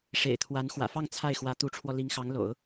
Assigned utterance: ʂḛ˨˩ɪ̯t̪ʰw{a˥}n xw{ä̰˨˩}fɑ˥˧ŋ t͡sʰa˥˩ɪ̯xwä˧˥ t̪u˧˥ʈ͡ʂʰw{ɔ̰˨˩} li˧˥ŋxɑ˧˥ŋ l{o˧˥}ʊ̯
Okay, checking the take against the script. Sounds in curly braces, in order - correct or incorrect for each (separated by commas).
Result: incorrect, correct, incorrect, incorrect